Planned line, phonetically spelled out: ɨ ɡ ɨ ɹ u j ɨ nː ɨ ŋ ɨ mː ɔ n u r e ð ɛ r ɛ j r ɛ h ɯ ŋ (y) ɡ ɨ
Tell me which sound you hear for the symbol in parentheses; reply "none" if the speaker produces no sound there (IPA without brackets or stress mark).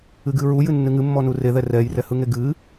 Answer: e